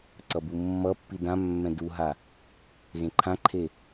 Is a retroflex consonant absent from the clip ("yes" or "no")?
yes